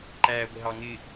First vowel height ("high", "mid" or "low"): low